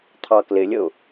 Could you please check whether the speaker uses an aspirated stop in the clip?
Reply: yes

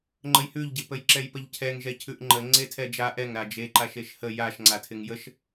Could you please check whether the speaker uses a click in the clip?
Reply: yes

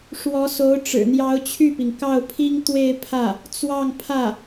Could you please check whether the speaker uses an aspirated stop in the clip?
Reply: yes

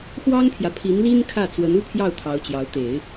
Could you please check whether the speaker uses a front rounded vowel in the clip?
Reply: no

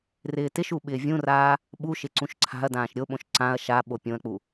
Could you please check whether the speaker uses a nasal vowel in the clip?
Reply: yes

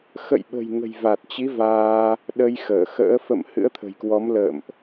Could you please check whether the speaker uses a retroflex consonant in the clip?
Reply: no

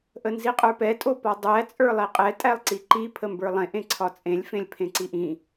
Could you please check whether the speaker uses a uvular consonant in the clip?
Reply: yes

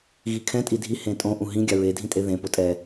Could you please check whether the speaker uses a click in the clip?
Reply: no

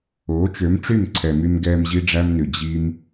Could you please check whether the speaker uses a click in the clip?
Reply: yes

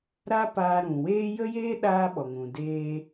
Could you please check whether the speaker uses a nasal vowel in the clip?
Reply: yes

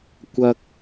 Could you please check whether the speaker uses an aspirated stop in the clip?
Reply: no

